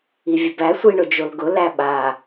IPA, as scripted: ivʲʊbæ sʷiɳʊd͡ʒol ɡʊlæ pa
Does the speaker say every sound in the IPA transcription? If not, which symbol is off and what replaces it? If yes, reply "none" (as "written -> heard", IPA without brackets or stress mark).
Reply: p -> ɓ